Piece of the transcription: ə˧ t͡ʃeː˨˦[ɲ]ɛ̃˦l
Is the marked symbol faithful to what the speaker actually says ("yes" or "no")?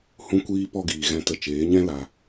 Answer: yes